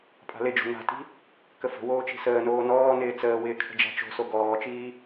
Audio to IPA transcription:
pʼ a̤ l ɪ d͡ʒ o̤ n a̤ t i̤ | k ə f ə̤ w oː t͡ʃ i̤ s əː n oː n ɔː n ɪː t͡s əː w ɪː kʰ ə̤ d͡ʒ a̤ t͡ʃ o̤ s o ɡ ɔː t͡ʃ iː

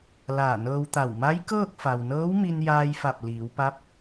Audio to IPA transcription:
l aː˧˩ n ɤː˧ w t̪ a˧˩ w m a˧˥ j k ɤː˥˨ k̚ f a˩ w n ɤː˧˥ w m i˧ n j aː˧ j f a˧˩ p̚ l iː˩˧ w p a˧˥ p̚

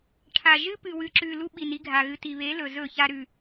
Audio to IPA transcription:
ʈʰ a˨ ʒ ɨ˦ p ɨ˨ w ɨ˨ ǁ ʉ˨ l u˦ ɓ i˨ n i˦ ɡʱ a˨ ɣ ɨ˨ t i˨ β e˨˦ l ɵ˨ z ɵ˦˨ ç a˦ ɾ ʉ˨

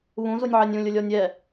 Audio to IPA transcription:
β ũ z u nʲ ʕ ɛ nʲ ũ lʲ ʊ lʲ ɔ nʲ ɛ

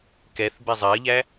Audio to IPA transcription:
k ɛ θ b ɛ zˤ ɜ ʎ æ

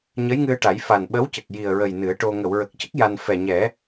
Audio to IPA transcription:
ɲ ə˧˥ j ŋ ɨ˧ ə̯ ʈ a˨˩˦ j f a˨˩ n ɓ ə˧˥ w c ə˨˩ k̚ j i˨˩ ə̯ ɹ ə˨˩ j n ɨ˨˩˦ ə̯ ʈ o˧ ŋ ə˨˩˨ w ɹ ə˨˩ k̚ c ə˦˥ k̚ j a˧ n f ɛ˨˩ ɲ ɛ˨˩˦

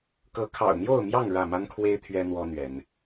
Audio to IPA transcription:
k ɤ˨˦ kʰ ɑ̰˨˩ ʊ̯ n̪ j o˥˨ ʊ̯ m j ɑ˥˨ ŋ ɻ ä˥˨ m a˦ n kʰ w e˦ ɪ̯ t̪ʰ ɥ ɛ˦ n̪ w ɔ˦ n̪ ɥ ɛ˨˦ n

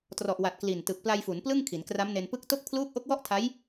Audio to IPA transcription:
t r ɔ˨˩ ʔ w a˨˩ t̚ k l i˨˩ n t ɯ˨˩ k̚ p l a˧ j f u˩˦ n p l ɯ˥˩ ŋ kʰ i˩˦ n k r a˦˥ m n e˧ n p ɯ˦˥ k̚ t o˥˩ k̚ pʰ l uː˦˥ k̚ ʔ o˦˥ k̚ w ɔ˥˩ ʔ tʰ a˦˥ j

